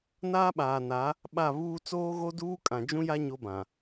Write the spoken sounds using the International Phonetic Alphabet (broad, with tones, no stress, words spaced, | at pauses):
naː˦ɓaː˨na˨˦ | ɓa˦˨ βuː˦ t͡soː˦ɣo˦duː˦ kʼã˨d͡ʒũ˦ja˦ ɲo˦bã˨